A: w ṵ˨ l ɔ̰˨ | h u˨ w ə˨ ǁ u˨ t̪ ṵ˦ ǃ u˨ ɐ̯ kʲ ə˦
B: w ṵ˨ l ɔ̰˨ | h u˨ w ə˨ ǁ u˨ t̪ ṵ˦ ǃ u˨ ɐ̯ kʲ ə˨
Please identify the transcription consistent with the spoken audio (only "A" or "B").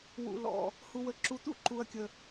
B